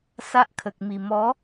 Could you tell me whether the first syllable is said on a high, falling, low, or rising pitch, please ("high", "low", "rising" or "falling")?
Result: high